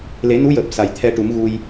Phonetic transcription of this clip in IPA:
l e˨˩˦ n u˧˥ j əː˨˩ p̚ s a˨˩ j t̪ʰ ɛ˧ ʈ u˨˩˦ m ɣ u˧ j

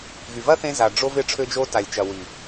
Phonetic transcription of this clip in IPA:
ɣ y˨ v ɐ˦ θ ẽ˧ z a˨ ɖ͡ʐ o˧ v ɪ˧ ʈ͡ʂʰ ø˧ d͡ʒ o˧ t a˨ lʲ t͡ʃ ɐ˨ w i˨

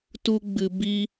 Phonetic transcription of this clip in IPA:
t u˦ ɡ͡b ɨ˧ b i˦

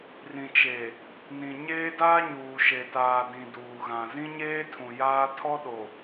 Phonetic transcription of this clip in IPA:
r ĩ˨ t͡ʃ e˨ | n ĩ˨ ɲ eː˦ d aː˦ ɲ uː˨ ʃ e˨ t aː˨ d ĩ˨ d uː˨ ɣ ã˨ z ĩ˦ ɲ eː˦ tʰ ũ˨ j aː˦ tʰ ɔ˦ ɗ o˨

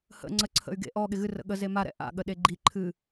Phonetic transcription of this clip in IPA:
h ə̰ ŋ͡ǀ ə ǀʰ ə̰ y̯ ɡ ḛ ʔ ɔ ɠ ɪ ɣ ɨ r ə̰ ɠ ə z e m a ɾ ɛ̰ ʔ a̰ ɠ ə ɗ e ɡ͡ǃ i ǃʰ ɨ

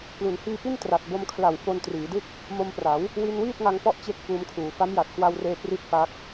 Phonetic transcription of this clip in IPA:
k l u˩˦ n h iː˧ p i˥˩ n t r a˨˩ t̚ b o˧ m kʰ l a˨˩ w f o˧ n t r iː˩˦ d ɯ˥˩ k̚ | m o˧ m p r a˩˦ w | w i˧ n w iː˥˩ t̚ ŋ a˧ ŋ p ɔ˦˥ ʔ t͡ɕ e˥˩ k̚ f uː˧ m kʰ uː˩˦ f a˦˥ m j a˨˩ t̚ k w a˧ w r eː˧ p r i˥˩ t̚ p a˦˥ k̚

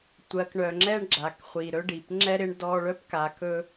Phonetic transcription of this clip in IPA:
tʷ ɜ˩ k ɳ œ˩ ŋ͡ǁ ɛ˥ ɳ ɡ͡ǁ a˩ k χʷ i˩ ɾ ɵ˥ ɖ i˩ p ŋ͡ǁ ɛ˥ ɾ ɪ˥ ɳ d ɔ˥ ɭ œ˥ p k a˧ k ɵ˥

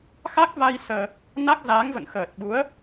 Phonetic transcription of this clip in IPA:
x a˦˥ k̚ v a˧ j s əː˧ | n a˦˥ k̚ z aː˨˦ ŋ v ə̰˧˨ n x əː˨˩ t̚ ɓ u˨˦ ə̯

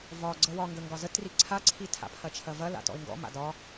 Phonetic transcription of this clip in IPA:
v ɒ ɡ͡ǀ ə w ɒ ŋ ɡ ə ŋ ɡ ɒ z ə t r i ǀʰ a ǀʰ i tʰ a̰ pʰ ɐ t͡ʃʰ ɐ v ɐ l a̰ t ɔ̰ ɪ̯ ŋ ɡ ɔ̰ m a̰ d ɒ

